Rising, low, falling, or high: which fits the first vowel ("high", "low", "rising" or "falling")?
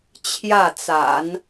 falling